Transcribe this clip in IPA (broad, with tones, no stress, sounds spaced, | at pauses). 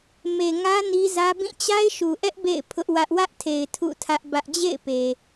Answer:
m e˨ ŋ ä˦ n i˦ z ä˦ b ĩ˦˨ t͡ɕ a˦ ɪ̯ ʃ u˨ ʔ ɛ˦ ʔ b ḛ˦˨ ɪ̯ pʰ ʊ˦ ʔ w ä˦ ʔ w ä˦ ʔ tʰ e˨ ɪ̯ tʰ ṵ˦˨ tʰ ä˦ ʔ b ä˦ ʔ d͡ʑ ḛ˦˨ ɪ̯ p e˨